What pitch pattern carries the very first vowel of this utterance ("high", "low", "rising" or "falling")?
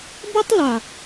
high